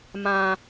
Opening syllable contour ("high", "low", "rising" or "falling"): high